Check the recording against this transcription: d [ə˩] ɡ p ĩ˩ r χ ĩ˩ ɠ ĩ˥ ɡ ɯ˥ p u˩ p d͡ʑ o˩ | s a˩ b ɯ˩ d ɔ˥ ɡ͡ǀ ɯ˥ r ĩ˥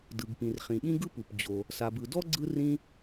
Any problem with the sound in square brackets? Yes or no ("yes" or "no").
yes